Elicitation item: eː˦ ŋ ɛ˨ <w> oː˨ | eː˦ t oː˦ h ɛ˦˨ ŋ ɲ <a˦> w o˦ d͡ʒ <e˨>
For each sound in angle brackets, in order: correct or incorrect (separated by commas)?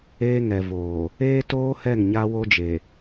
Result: incorrect, correct, correct